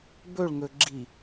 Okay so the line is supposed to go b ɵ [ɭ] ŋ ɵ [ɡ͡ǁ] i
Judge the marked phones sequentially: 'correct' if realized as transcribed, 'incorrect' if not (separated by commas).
correct, correct